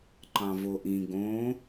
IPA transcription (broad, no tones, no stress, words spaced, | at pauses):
ǃɑ̃voʔĩ ɡõ